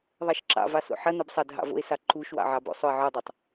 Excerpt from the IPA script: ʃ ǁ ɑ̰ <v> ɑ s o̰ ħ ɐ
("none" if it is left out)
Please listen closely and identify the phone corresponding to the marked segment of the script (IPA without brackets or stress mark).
v